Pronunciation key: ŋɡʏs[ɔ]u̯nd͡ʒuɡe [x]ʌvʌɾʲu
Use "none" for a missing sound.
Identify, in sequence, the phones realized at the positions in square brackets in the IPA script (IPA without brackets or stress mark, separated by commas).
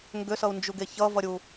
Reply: ʌ, ç